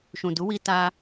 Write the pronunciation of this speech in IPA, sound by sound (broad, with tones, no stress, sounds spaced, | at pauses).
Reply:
ʃ ũ˨ d u˨˦ w i˧ t a˧